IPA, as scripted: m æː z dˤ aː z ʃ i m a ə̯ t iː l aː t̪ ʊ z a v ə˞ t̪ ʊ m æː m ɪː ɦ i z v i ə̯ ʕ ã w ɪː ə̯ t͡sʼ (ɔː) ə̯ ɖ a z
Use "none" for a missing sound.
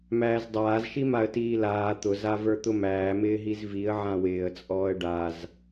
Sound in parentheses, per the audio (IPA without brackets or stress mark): ɔː